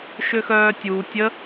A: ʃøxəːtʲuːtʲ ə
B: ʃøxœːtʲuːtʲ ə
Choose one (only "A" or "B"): B